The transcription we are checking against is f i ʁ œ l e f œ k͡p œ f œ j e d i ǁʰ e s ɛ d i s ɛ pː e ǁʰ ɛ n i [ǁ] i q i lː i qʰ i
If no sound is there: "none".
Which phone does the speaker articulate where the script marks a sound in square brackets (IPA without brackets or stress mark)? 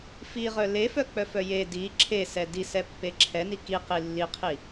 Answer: k